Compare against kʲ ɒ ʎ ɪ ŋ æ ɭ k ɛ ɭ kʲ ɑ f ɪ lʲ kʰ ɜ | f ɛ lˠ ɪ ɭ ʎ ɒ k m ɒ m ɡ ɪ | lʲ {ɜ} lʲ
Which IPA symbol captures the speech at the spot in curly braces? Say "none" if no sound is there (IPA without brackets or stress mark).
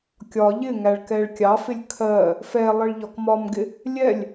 ɛ